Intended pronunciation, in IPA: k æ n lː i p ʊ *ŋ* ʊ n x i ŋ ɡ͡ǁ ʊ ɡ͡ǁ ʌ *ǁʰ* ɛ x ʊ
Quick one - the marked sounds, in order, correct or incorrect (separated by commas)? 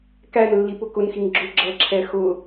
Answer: incorrect, correct